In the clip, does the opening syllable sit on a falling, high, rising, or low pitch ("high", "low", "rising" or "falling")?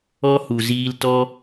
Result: high